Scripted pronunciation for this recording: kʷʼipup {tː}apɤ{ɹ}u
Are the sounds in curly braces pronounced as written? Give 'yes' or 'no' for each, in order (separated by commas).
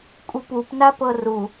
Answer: no, no